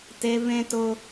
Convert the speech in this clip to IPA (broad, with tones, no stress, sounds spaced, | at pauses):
t e˧ v ẽ˦ t ʊ˦